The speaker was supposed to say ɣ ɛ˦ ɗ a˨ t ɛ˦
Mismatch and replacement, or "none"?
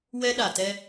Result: ɣ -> w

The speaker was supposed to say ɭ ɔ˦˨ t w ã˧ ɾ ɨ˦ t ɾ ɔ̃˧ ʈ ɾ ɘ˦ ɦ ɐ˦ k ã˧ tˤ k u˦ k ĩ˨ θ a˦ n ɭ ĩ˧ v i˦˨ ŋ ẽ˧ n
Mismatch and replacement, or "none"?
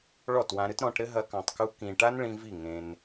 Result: θ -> ʈ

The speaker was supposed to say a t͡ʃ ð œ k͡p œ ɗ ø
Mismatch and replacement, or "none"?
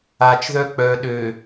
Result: none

